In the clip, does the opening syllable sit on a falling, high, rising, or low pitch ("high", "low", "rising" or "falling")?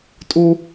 high